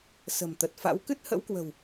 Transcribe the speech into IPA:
s ə̤˨˩ m t̪ ə˨˩ t̚ f a̰˧˥ w k ɨ˦˥ t̚ h ə̰˧˥ w k w ə̤˨˩ w

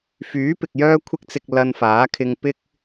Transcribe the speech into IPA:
f yː˨˥ p ɪ˨ k̚ j œː˥ kʷʰ ɪ˥ k̚ t͡s ɪ˧ k̚ l ɐ˧ n f aː˨˥ kʰ ɪ˧ ŋ p ɪ˥ k̚

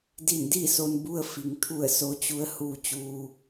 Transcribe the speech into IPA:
d i˧˩ n d i˥˨ s o˧ n b u˧ ə̯ f i˩ ŋ t̪ʰ u˧˩ ə̯ s o˧˥ t͡ɕ u˧˥ ə̯ h uː˧ t͡ɕ uː˧

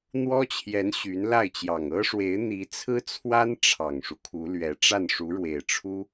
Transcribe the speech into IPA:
n̪ w ɔ˥ t͡ɕʰ j ɛ˧˥ n ɕ y˧˥ n l a˥˩ ɪ̯ t͡ɕ j ɑ˨˩ ŋ ɤ˥ ʂ w e˧˥ ɪ̯ n̪ i˧˥ t͡sʰ ɹ̩˥ t͡sʰ w a˥ n ʈ͡ʂʰ ɑ˨˩ ŋ ʂ u˦ kʰ u˧˥ l ɥ ɛ˧˥ ʈ͡ʂ a˥˩ n ʂ u˧˥ ɻ w e˨˩ ɪ̯ ʈ͡ʂʰ u˥

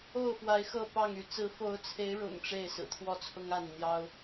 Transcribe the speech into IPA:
o˥˨ ʊ̯ f w a˨˦ ɪ̯ x ɤ˥˨ p ɑ˥˨ ŋ y˨˦ t͡s ɹ̩˨˦ f o˨˦ ʊ̯ t͡sʰ e˨˦ ɪ̯ ɻ ʊ̰˨˩ ŋ ʈ͡ʂ e˥˨ ɪ̯ s ɹ̩˨˩ t̪ʰ w ɔ˥˨ t͡sʰ ʊ˦ ŋ a˥˨ n n̪ j ɑ˦ ʊ̯

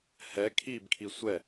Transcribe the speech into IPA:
h ɛ kʰ i b kʰ i sʷ ɛ

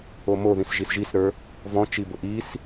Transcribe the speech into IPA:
o m o ð ĩ s ʒ i s ʒ i s ɾ ə˞ | v ɔ̃ t͡ʃ i b ʊ ʔ i s

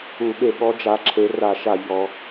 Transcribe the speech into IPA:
u˧˩˧ ɠ e˧˩˧ ɠ ɔ˨˦ d͡ʒ a˨˦ ǁʰ e˨˦ r a˧˩˧ ʃ a˧˩˧ ʎ ɔ˨˦

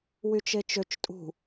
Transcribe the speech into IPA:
w y t͡ʃ e t͡ʃ ø t͡ʃ tʼ ṳ

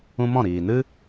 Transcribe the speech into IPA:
ũ˦ m ɔ̃˦˨ ɾ iː˨ n ɨ˦

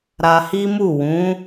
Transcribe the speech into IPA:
ɾ a˧ h i˦ m u˦˨ w ũ˨˦

